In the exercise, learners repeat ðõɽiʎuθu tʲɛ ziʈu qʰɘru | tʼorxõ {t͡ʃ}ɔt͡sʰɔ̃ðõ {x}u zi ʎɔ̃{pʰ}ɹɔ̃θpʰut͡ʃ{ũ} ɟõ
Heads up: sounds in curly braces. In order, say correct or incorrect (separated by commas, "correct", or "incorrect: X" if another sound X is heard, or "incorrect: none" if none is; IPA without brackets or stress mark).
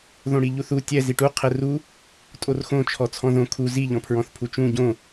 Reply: incorrect: t͡ʃʰ, incorrect: kʰ, correct, correct